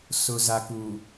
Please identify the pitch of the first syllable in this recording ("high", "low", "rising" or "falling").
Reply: low